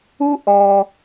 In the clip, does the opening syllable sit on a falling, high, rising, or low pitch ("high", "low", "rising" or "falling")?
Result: high